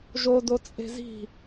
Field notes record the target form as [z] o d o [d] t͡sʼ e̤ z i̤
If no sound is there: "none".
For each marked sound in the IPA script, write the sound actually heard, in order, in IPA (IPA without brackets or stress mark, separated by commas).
ʒ, none